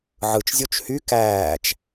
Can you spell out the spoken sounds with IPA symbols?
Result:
ʕɯt͡ʃzʲot͡ʃ hy kæːt͡ʃ

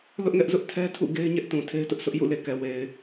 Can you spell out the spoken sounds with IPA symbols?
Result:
lʊ˦ʔŋɛ˦ʔzʊ˦ʔ tʰɛ˦tʰṵ˦˨ ɡe˦ɪ̯ɲɛ˦ʔtũ˨ tʰe˦ɪ̯tʊ˦ʔsʰʊ˦ʔ jṵ˦˨le˨ kɛ˨we˨ɪ̯

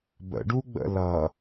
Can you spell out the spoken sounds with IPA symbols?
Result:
bə̰ɖuɡ͡bə̰ lʌ

